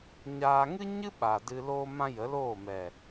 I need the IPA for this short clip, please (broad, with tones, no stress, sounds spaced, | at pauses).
ɲ aː˧ ŋ ɨ˦ ɲ ɨ˦ ɓ a˨ d ɨ˧ l oː˦ m ã˦ j ə˨˦ l oː˦˨ m ɛ˨